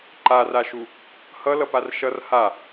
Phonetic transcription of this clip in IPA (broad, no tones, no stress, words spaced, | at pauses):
ǃaraʃu | hʌlʌpar ʃʌr ha